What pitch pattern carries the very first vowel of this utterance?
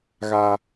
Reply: high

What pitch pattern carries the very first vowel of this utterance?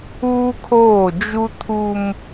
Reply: high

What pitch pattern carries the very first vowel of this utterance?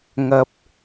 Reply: low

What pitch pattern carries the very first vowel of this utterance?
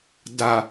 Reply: low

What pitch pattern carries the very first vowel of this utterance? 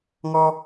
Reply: high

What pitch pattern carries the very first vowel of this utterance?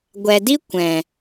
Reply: low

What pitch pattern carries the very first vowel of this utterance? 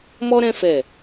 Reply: high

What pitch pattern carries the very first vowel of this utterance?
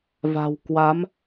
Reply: low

